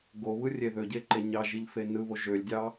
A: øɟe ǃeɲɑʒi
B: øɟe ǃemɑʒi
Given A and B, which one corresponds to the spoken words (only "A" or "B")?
A